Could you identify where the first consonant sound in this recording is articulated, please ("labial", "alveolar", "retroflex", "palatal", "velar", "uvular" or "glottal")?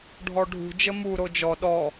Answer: retroflex